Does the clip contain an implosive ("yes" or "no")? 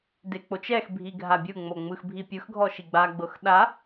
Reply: yes